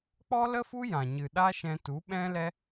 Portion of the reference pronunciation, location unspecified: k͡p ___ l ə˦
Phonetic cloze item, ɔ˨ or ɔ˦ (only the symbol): ɔ˦